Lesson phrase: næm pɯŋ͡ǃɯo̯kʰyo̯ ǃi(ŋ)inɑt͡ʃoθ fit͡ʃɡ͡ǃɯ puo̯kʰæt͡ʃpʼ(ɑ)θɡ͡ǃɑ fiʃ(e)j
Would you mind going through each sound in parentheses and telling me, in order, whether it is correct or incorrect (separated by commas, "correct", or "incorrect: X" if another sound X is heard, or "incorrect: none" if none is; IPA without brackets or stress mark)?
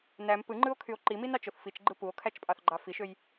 incorrect: m, correct, incorrect: ø